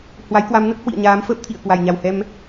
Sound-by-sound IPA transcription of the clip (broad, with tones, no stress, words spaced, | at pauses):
hwa˨˦jkwa˨˦mnə˦˥t̚ hwḭ˧˨ə̯ɲaː˨˦mfəː˦˥p̚ t̪ʰḭ˧˨ə̯ kwa˧˩jɲa˨˩whɛ˧m